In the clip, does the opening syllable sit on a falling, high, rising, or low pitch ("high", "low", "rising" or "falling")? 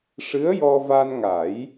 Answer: rising